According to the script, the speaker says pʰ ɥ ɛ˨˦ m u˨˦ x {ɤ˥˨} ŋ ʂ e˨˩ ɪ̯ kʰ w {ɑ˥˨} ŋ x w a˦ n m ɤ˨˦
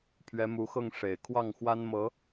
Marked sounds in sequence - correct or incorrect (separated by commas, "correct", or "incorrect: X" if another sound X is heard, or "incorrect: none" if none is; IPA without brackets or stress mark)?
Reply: correct, correct